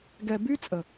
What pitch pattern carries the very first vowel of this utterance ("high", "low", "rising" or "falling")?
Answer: low